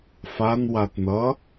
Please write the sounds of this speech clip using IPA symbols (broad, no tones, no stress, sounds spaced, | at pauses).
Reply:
f a n w a t n ʌ